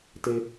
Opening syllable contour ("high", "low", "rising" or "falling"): high